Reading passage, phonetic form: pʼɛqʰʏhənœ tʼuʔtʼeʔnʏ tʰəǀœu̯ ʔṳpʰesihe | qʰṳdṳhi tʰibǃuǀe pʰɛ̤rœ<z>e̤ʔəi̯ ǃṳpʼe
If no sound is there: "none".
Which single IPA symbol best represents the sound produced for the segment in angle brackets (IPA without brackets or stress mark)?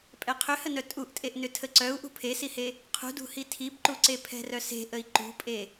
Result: s